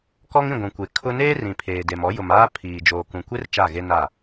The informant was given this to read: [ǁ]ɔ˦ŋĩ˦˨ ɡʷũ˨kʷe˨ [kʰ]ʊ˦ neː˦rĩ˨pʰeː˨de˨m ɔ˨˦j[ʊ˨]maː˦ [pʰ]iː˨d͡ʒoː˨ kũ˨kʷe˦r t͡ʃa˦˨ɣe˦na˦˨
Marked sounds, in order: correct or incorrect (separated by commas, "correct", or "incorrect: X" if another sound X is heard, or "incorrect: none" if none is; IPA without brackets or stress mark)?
incorrect: k, correct, correct, correct